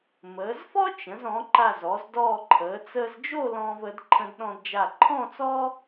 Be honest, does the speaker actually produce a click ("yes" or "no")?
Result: yes